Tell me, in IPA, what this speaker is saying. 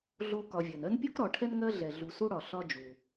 ɮ o˦ k ɒ˨ vʲ ɜ˩ n ɜ˥ n pʲ o˥ k ɾ ɒ˨ ʈʰ ɛ˥ n ŋ ɜ˦ ɮ ɛ˩ ɮ u˨ s u˦ ɽ ɒ˩ ɬ ɒ˦ d͡ʒ u˩

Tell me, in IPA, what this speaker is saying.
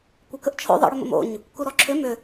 kʷ ɐ k ə ʔ t͡ʃʰ o̰ ðˤ ə̰ ɽ ʏ m ə̰ m o̰ ɲ | k u ɾ ɔ ǁʰ ʏ m ʏ

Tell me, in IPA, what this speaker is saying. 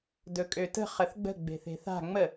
d ɵ kʼ ø t ə̤ χ ə θ ɡ͡b ə̤ ɡ͡b e̤ θ e̤ θ a̤ ŋ͡m ə

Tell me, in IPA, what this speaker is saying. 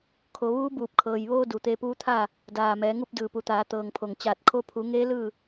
kʰ o˩˧ ʋ uː˧˥ b uː˧˩ p̚ kʰ ɤː˩ j ʋ oː˧ d u˩ t̪ eː˧ p uː˧˥ t̪ʰ aː˥˨ | d aː˧˩ m ɛː˩˧ ŋ u˥˨ p̚ d ɯː˧˩ p u˩˧ t̪ aː˩˧ t̪ ɤː˩ ŋ pʰ o˩ ŋ t͡ɕ aː˧˩ t̚ kʰ o˧ pʰ u˩˧ ŋ eː˧˥ l ɯː˥˨

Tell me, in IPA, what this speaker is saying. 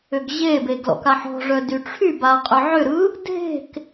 ʏ ɡ ʑ e b e ɡ l ɔ̰ k a ħ ɔ̤ ʐ œ d y ʈ͡ʂʰ y b a qʼ ʏ ʕ ʏ ɾ ɯ | dʱ e̤ k

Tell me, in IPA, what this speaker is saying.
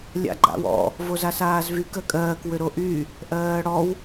lʲ a̰ ɡ͡ǃ a̰ w ɔ̰ | v o z a s aː z v y k ɜ kʼ ɜː k w ʏ ɾ o ʔ y | ʔ ɜː ɽ ɔ w

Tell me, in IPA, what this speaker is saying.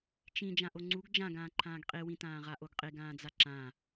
t͡ʃ ĩ d͡ʒ ã ʔ o ŋ͡ǀ u ɡ d͡ʒ ã ɡ ãː ǃʰ ãː ɡ qʼ i w ĩ t ãː ʁ a ʔ o ɡ qʼ i ɡ ãː d͡z a ǁ ã

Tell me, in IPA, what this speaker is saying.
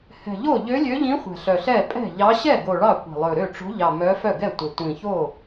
h ɛ̤˨˩ ʎ o˥˩ ʎ ø˧˥ lʲ ø˧˥ ʎ ĩ˧˥ χʷ ɛ̤˨˩ ɬ œ˨˩ ɬ ɛ˥˩ pʼ ɛ̤˥˩ ʎ ɑ˧˥ ɕ ɛ˥˩ ɡ o˨˩ ɭ ɑ˥˩ kʷ ɛ̤˨˩ lˠ ɵ˨˩ ɾ ø˥˩ ʈ͡ʂ o̤˧˥ ʎ ɑ˨˩ m œ˧˥ f œ˥˩ ɡ ɛ˥˩ tʷ ɛ˨˩ tʷ ĩ˨˩ ç o˥˩

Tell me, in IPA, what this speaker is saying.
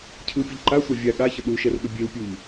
cʰ ɯ pʲ ə ʎ ǃ a sʷ a vʲ a ɠ a ç ə ɗ u ʃ ɛ r ɠ ə bʲ e w pʲ u ʎ

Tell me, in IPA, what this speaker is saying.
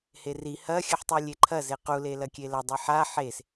h e r i h ɐ xʲ ɨ ħ tˤ u lʲ e ǃʰ ɐ z e q u l e l ɐ kʲ e l ɐ dˤ i ħ a ħ e s

